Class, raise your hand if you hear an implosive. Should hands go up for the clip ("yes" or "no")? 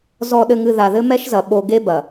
yes